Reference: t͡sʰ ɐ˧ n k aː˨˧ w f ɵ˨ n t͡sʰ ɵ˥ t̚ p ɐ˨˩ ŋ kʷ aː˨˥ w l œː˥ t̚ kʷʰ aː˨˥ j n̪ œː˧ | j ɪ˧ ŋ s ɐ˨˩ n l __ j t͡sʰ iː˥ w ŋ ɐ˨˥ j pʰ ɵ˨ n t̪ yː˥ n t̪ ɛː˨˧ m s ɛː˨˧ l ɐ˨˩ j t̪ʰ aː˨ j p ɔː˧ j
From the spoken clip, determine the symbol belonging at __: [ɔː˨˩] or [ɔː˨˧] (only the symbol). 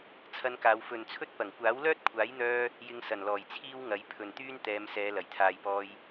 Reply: ɔː˨˩